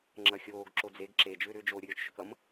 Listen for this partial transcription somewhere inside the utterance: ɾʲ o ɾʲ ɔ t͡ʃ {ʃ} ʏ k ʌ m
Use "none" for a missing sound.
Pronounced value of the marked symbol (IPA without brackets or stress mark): ʃ